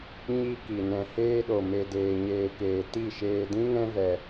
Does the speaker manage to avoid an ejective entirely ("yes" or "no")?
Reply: yes